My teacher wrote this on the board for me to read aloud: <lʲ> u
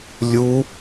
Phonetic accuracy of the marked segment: correct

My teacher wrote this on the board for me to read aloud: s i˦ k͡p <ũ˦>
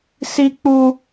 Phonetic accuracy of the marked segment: incorrect: u˦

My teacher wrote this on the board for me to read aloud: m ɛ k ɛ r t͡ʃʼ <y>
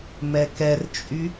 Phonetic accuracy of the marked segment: correct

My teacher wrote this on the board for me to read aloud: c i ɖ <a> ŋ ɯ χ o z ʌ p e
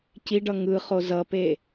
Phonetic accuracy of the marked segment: incorrect: ʌ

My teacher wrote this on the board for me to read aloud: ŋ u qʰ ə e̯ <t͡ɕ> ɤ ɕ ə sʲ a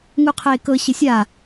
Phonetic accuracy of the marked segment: incorrect: k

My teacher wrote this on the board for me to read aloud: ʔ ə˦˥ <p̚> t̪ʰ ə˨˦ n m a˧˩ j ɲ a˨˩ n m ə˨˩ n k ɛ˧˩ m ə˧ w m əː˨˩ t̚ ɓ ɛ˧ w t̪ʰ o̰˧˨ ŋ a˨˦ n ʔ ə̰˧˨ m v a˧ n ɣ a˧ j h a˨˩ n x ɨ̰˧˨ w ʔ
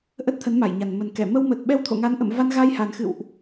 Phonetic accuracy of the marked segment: incorrect: t̚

